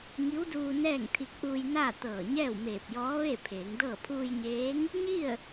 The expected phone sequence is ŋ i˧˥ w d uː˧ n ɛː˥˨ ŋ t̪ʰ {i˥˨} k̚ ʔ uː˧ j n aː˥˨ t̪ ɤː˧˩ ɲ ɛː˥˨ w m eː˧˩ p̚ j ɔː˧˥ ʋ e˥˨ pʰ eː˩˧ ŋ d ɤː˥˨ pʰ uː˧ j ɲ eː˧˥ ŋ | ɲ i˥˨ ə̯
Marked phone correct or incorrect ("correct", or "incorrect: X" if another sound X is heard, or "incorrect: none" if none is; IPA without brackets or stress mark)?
incorrect: i˧